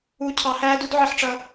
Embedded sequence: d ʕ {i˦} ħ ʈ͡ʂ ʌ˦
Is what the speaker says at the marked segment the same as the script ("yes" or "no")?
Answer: yes